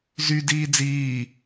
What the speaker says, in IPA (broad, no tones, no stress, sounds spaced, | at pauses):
z y d iː d͡z iː